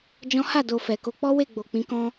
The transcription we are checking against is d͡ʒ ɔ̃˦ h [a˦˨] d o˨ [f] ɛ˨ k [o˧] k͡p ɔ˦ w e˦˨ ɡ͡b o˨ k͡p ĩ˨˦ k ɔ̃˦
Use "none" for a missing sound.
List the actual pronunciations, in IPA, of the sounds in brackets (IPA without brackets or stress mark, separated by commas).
a˦˨, f, o˧